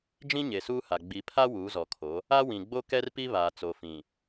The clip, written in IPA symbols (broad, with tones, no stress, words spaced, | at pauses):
d͡ʒĩ˦ɲe˨suː˦ha˨ ɡ͡bi˨pʰa˦ wuː˨˦zɔ˨kʰo˨˦ | a˦ wĩ˨ ɡ͡bo˦kɛ˦rpi˦ βaː˨ t͡so˨fĩ˨